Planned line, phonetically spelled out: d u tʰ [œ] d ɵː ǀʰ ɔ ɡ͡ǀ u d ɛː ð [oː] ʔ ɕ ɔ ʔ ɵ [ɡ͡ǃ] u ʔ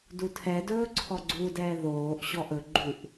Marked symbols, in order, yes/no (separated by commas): no, yes, yes